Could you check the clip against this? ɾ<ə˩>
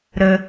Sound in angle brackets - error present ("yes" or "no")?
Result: yes